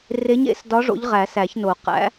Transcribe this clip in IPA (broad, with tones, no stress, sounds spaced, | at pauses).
r e˧˥ ɲ ḛ˧˥ s d ɒ˧˥ ʐ o̰˧˥ ʎ ʁ æ˨˩˦ s æ˨˩˦ ç n o˨˩˦ q æ̰˧˥